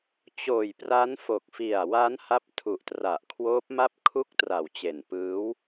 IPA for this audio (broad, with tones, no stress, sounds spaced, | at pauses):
t͡ɕ oː˨˩ j p r a˦˥ n f o˨˩ k̚ f i˨˩ a̯ w a˦˥ n h a˦˥ p̚ tʰ u˨˩ ʔ t r a˨˩ ʔ kʰ w oː˦˥ p̚ m a˥˩ p̚ kʰ u˥˩ k̚ t r a˨˩ w t͡ɕ e˨˩ n p ɯː˦˥ w